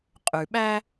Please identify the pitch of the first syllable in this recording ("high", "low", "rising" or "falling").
low